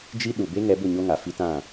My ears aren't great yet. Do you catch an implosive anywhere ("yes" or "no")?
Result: yes